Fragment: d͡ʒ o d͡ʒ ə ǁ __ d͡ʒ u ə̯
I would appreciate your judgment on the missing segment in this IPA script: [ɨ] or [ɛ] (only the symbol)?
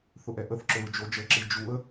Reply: ɨ